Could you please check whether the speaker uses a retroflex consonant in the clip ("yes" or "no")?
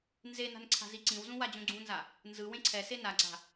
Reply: no